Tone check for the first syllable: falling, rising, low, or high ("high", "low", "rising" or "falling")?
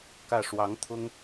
falling